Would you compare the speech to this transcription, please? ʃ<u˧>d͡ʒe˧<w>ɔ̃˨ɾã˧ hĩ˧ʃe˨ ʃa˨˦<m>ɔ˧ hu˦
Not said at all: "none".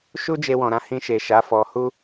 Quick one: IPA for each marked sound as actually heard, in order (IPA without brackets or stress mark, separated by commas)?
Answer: u˦, w, f